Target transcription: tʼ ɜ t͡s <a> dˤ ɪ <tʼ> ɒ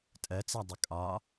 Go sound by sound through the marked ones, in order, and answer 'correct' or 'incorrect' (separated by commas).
incorrect, incorrect